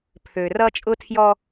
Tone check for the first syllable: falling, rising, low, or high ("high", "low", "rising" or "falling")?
low